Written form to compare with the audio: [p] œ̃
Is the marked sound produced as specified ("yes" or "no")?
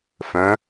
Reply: no